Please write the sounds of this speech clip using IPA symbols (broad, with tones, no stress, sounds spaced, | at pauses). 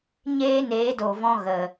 ɲ eː˦ n eː˨˦ d o˨ v ɔ̃˧ ɣ ə˨